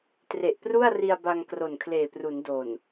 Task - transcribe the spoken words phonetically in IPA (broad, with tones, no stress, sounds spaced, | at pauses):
t r e˨˩ ʔ p r u˥˩ a̯ r i˧ a̯ b a˧ ŋ k r o˨˩ n kʰ l eː˨˩ p r u˩˦ n d o˨˩ n